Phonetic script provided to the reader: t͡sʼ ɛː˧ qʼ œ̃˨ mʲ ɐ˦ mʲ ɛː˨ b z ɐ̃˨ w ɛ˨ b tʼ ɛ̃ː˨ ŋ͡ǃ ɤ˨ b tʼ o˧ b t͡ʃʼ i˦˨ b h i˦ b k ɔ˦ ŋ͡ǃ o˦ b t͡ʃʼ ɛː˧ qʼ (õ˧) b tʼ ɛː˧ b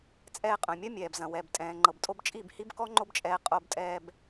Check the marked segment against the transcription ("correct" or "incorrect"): incorrect